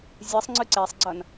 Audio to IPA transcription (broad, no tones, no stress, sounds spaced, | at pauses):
zʲ ɯ sˤ ŋ͡ǀ ɯ ǀ e sˤ ɡ͡ǀ ʌ n